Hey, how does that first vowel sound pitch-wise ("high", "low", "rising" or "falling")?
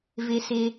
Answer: low